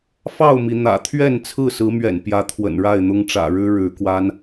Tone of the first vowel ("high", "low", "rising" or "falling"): falling